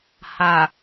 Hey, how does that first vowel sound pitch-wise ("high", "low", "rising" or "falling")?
low